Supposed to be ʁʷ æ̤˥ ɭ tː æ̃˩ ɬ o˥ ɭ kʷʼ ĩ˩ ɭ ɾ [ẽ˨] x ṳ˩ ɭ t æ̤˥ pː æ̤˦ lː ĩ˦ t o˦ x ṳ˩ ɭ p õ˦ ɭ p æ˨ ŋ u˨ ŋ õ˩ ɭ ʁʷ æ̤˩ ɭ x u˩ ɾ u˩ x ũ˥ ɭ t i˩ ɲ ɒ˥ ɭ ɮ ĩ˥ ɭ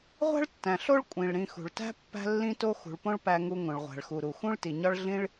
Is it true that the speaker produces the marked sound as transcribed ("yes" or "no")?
no